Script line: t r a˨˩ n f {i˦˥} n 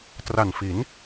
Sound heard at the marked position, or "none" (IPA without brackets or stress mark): i˩˦